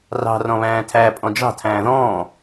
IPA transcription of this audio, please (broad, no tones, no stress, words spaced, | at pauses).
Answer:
rɑ̤ rɔ̃βæ̃ːtʰæ pʼɔ̃d͡ʒɑ̤ tʰæ̃ːðɔ̃ː